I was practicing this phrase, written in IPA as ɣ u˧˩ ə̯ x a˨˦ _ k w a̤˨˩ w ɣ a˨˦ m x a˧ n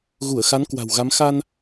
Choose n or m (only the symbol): n